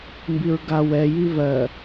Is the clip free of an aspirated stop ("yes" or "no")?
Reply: yes